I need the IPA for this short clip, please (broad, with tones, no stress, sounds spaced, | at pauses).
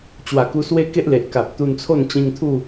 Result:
t͡ɕ w a˨˩ k u˧ s w e˦ k e˦ ʔ l e˨ ʔ k a˨ p̚ t̪ u˧ n t͡sʰ o˥˧ n t͡ɕ ĩ˧ ŋ t̪ʰ u˥˧